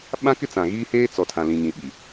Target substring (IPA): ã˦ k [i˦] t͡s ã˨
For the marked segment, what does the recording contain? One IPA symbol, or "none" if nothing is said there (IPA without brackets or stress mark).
ɪ˦